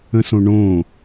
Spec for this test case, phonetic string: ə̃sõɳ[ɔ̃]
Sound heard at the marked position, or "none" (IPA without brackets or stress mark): õ